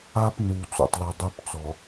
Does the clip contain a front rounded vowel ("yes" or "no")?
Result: yes